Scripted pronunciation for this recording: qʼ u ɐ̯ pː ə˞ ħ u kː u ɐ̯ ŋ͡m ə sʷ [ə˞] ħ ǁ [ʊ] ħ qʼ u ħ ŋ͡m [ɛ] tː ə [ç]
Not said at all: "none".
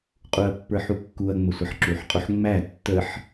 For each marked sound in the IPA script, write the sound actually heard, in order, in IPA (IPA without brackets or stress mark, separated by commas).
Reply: ʌ, u, æ, ħ